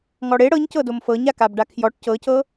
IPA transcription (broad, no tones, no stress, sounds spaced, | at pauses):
ŋ ɔ ɽ e ɽ ɤ ɲ c ɤ d o m f ɤ ɲ a k a b ɖ a kʰ j ɔ ʈ c ɤ c ɤ